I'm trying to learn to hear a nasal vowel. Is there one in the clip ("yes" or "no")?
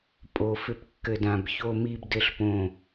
yes